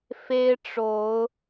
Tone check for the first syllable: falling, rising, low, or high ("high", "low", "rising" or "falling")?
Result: high